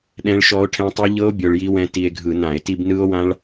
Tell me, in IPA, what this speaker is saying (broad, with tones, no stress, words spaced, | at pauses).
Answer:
ɗɛ̃˦˥ɭʃɔ˦˥o̯ʈʰɛ̃˦˥tˤɯ˦˥ ʎɤ˦˥o̯ bʲo˧ɭji˦˥wɛ̃˦˥ ti˧e̯ɡʱɯ˧˩˧nã˧˩˧e̯ ti˧bnɯ˦˥o̯wã˦˥ɭ